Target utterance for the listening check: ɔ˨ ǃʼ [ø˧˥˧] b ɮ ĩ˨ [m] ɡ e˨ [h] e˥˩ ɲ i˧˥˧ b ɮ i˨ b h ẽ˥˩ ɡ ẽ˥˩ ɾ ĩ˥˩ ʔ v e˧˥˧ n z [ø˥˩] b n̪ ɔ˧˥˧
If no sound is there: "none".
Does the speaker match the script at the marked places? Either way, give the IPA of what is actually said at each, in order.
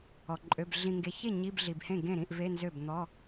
ø˧˥˧, ŋ, ç, ø˥˩

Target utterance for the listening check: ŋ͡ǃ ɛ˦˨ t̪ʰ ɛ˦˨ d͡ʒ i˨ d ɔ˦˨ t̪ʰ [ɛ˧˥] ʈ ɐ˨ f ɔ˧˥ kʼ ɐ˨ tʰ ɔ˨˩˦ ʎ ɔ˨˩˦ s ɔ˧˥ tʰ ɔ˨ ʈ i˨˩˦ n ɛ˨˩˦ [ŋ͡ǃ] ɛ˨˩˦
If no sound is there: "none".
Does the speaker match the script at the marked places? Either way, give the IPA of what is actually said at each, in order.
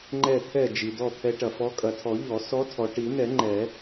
ɛ˧˥, ŋ͡ǃ

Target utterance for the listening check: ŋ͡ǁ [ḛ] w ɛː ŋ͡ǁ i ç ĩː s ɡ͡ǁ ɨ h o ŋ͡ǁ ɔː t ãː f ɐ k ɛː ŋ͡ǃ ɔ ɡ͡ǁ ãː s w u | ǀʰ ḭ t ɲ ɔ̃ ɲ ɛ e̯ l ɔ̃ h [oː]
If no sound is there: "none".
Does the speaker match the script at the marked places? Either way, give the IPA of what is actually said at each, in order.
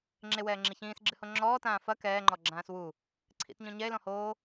e, oː

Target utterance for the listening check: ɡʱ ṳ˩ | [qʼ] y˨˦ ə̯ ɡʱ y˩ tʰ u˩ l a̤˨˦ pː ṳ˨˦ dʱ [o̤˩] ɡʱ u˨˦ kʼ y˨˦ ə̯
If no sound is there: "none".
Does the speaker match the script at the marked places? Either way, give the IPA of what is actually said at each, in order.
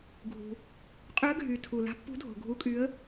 qʼ, o̤˩

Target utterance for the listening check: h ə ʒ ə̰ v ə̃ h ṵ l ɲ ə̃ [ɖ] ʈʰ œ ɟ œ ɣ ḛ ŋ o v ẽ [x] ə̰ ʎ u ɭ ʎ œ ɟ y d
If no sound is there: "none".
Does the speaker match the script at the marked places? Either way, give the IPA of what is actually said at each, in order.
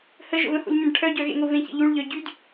ɖ, ç

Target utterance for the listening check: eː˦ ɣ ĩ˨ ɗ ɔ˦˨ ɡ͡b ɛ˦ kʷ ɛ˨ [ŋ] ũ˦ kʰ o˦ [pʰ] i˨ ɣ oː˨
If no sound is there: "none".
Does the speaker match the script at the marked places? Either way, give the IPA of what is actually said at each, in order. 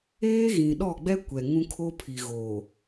ŋ, pʰ

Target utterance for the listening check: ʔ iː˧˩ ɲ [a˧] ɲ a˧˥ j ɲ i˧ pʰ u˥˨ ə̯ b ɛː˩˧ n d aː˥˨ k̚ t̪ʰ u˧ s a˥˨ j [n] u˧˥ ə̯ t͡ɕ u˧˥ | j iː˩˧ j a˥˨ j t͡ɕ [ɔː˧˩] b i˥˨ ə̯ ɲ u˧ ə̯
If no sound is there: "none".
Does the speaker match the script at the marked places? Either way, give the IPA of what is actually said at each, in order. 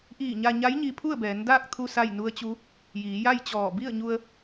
a˧, n, ɔː˧˩

